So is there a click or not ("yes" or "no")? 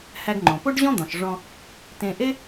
yes